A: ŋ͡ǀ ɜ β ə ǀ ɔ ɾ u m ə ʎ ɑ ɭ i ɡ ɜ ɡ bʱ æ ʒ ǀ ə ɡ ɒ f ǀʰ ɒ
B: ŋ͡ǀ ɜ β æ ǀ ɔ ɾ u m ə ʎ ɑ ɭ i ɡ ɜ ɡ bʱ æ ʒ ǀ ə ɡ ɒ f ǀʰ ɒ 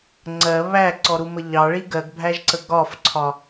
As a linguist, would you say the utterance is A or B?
B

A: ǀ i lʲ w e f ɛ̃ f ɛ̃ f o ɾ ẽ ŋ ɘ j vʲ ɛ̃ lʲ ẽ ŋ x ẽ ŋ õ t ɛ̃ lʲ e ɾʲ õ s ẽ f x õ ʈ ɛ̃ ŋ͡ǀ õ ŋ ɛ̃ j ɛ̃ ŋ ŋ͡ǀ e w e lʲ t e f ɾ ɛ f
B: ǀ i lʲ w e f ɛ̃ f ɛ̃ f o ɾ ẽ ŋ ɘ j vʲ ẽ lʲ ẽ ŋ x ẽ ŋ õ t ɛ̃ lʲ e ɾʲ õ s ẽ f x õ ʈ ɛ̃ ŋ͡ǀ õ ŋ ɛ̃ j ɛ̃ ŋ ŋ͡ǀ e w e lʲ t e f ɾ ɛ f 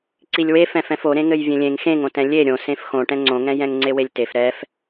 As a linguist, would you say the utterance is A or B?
B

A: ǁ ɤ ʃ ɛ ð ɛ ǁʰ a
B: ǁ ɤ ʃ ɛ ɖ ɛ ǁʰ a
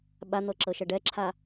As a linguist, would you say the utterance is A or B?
B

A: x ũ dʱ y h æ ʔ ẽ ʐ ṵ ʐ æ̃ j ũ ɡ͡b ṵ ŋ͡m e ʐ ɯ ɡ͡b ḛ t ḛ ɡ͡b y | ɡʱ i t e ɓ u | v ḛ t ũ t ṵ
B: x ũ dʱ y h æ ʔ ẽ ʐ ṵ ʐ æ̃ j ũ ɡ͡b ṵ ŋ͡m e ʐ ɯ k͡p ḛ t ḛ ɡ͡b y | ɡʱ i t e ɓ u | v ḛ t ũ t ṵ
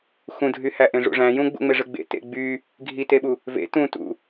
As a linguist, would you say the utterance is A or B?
A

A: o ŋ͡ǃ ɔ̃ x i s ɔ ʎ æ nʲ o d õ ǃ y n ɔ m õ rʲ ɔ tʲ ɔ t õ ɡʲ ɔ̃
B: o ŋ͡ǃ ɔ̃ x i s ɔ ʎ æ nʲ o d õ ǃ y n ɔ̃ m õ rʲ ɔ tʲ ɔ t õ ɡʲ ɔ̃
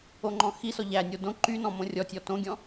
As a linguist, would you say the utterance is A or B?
B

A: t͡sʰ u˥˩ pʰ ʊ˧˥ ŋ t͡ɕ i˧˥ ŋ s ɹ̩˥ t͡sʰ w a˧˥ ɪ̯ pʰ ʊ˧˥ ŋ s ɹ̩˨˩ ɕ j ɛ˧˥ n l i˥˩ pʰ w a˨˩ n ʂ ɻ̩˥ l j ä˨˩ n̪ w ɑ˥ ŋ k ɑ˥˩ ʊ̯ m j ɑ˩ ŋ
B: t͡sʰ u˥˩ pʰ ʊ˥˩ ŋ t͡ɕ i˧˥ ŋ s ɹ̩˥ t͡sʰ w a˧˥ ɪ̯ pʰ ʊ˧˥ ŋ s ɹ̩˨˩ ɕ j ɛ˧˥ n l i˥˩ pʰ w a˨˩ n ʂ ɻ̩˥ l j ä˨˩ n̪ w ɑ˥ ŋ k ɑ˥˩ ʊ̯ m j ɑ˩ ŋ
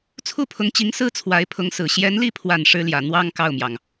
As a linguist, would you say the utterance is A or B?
A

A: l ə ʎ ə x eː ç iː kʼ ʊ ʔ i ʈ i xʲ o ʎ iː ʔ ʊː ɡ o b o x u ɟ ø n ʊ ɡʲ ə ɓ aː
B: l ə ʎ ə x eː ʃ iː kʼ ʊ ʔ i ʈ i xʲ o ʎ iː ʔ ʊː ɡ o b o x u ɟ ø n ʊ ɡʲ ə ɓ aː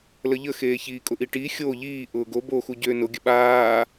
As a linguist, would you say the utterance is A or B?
A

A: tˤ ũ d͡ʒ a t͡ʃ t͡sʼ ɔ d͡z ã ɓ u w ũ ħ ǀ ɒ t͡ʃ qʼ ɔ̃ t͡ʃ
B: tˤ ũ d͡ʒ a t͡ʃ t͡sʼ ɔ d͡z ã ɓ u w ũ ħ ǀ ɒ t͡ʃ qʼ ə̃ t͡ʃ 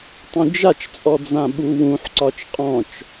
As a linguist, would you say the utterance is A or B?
A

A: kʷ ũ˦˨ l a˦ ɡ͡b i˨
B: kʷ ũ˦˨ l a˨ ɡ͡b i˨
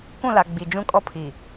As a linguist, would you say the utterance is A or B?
B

